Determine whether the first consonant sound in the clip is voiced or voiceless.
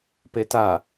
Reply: voiceless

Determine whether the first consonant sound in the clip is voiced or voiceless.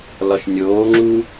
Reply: voiced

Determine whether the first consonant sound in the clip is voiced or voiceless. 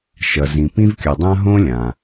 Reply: voiceless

